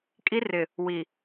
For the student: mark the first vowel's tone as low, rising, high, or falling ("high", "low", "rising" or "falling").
high